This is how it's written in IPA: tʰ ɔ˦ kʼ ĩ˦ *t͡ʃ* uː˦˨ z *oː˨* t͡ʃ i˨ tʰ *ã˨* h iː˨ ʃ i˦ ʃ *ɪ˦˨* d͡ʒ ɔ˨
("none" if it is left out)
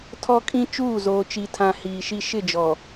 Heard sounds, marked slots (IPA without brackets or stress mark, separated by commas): t͡ʃ, oː˨, ã˨, ɪ˦˨